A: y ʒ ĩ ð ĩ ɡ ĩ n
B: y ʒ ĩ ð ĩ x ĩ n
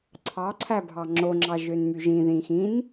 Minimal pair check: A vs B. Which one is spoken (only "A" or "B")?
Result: B